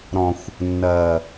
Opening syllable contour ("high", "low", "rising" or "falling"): low